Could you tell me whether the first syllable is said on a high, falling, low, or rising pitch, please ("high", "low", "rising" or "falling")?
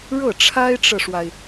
falling